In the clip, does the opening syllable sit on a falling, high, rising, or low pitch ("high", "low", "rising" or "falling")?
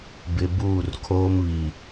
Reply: low